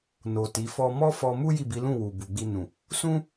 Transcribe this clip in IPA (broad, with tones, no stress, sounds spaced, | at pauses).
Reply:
n o˨ t i˨˦ f ɔ˦ m ɔ˦ f ɔ˧ m u˦ j i˦˨ b i˨˦ l ũ˦˨ w u˨ b u˨ ɡ͡b i˧ n ũ˨ | s ũ˦